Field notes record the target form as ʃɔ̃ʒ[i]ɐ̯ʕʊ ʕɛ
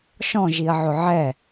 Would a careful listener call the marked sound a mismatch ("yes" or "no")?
no